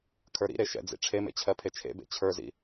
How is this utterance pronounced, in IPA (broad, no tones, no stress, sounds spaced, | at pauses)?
kʰ ə˞ ɾ ḭ ɾ e ʃ ɛ̰ d͡z ḭ ʈ͡ʂʰ e m ḛ t͡ɕʰ ɜ pʰ e t͡ʃʰ ḛ b ḛ t͡ɕʰ ə˞ z ḭ